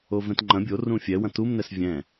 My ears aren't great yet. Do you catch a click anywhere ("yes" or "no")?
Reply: yes